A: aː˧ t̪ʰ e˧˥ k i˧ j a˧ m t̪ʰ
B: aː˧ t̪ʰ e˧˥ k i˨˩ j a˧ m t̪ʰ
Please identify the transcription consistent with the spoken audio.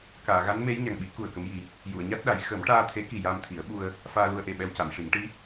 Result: B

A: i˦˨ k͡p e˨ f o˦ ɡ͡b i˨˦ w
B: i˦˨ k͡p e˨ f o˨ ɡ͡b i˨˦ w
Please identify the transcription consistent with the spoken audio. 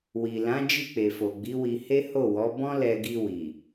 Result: B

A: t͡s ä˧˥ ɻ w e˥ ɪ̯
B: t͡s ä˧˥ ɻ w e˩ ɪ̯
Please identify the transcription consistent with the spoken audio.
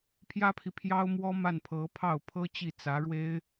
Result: A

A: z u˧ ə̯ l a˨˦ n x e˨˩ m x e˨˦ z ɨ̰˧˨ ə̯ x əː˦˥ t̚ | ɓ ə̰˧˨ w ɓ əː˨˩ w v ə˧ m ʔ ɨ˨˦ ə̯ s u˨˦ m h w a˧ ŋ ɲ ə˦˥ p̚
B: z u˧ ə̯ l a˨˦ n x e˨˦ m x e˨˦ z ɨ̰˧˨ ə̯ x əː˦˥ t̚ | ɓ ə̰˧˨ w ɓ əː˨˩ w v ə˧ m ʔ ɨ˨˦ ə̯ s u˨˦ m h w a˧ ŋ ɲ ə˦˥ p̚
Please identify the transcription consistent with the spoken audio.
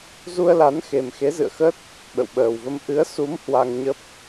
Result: A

